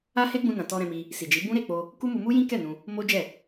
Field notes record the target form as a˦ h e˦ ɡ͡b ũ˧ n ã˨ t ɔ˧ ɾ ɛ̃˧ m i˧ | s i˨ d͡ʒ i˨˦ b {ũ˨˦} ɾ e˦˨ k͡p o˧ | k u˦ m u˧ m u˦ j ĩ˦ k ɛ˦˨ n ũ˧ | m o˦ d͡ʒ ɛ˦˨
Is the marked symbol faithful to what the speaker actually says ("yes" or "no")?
no